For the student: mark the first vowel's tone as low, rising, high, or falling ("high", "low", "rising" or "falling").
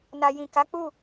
low